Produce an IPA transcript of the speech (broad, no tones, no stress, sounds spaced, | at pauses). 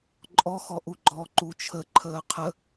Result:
ǃʼ ɔ x ɔ ʔ u ɡ͡ǃ ɔ ǃ u t͡ʃʰ ə ǃʰ əː qʰ ə